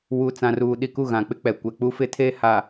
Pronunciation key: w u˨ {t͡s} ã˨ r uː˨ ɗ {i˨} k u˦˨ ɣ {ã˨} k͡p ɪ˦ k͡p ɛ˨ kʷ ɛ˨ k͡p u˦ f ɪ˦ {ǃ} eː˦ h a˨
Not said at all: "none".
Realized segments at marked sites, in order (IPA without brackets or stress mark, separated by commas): t͡s, i˨, ã˨, tʰ